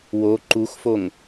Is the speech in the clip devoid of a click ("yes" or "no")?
no